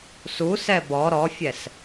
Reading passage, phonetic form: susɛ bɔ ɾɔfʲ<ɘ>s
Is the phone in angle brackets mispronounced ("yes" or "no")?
yes